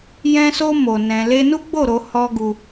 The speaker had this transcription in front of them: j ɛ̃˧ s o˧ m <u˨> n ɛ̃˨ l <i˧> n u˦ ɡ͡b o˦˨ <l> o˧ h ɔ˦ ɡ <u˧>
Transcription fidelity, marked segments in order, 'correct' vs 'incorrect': incorrect, incorrect, incorrect, correct

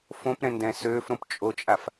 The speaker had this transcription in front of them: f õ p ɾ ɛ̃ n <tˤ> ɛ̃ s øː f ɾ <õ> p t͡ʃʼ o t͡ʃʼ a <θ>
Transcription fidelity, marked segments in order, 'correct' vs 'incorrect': incorrect, correct, incorrect

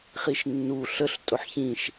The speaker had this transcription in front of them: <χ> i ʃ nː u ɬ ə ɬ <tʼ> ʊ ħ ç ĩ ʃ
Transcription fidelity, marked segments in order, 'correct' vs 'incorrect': correct, correct

